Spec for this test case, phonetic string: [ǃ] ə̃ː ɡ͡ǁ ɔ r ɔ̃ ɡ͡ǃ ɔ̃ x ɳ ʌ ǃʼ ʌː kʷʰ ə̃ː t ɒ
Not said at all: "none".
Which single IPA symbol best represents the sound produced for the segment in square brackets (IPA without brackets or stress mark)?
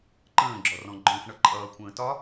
ǃ